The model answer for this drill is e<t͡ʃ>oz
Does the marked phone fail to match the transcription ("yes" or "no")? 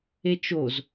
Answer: no